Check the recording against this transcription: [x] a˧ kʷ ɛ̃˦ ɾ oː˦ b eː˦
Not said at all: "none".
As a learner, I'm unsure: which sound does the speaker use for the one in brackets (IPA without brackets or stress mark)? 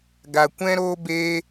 ɡ